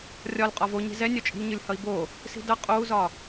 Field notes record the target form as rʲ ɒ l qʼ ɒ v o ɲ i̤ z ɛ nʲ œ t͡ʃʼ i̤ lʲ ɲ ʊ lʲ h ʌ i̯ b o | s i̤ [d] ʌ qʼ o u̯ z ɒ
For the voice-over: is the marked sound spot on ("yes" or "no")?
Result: yes